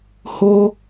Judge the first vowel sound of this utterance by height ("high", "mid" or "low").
mid